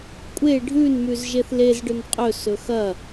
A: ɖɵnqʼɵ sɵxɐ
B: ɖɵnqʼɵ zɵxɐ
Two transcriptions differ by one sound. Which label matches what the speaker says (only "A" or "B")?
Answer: A